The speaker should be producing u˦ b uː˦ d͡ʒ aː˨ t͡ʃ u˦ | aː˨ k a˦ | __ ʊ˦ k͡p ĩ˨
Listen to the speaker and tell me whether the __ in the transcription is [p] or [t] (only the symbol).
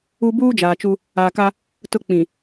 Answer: t